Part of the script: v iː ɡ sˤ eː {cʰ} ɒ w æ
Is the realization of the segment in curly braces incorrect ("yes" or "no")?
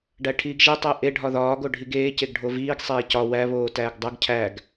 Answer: yes